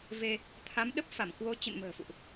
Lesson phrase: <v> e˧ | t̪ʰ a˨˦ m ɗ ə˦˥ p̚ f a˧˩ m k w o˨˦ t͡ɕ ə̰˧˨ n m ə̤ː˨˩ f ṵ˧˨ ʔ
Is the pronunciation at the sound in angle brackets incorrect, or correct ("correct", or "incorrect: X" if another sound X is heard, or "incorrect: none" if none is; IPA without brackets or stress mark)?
correct